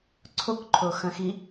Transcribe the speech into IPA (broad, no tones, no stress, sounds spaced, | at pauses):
ǀʰ o k ǃʰ o x ɐ̃ x i